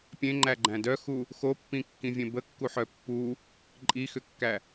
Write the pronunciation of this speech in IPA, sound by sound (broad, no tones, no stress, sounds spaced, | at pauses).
pʲ ẽ ŋ͡ǃ æ ɡ͡ǃ æ̃ d œ x u | x o pː ĩ kː ĩ vʲ ẽ b ə kː u ħ œ pː u | ǃʼ i x ʏ kː æ